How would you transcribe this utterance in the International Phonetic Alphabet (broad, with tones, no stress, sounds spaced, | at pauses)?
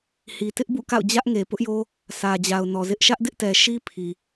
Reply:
h i˨ t ɪ˦ ʔ b ṵ˦˨ k a̰˦˨ ʊ̯ d͡ʑ ä˦ ʔ ŋ e˨ p ʊ˦ ʔ j o˦ | s ä˨ d͡ʑ a˨ ʊ̯ n ɔ˨ z ɪ˦ ʔ ʃ ä˦ ʔ d ɪ˦ ʔ t ɛ˨ ʃ i˦ pʰ i˨